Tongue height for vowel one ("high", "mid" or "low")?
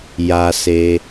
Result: low